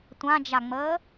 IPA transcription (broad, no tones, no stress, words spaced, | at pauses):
tʷãd͡ʒaŋ͡məː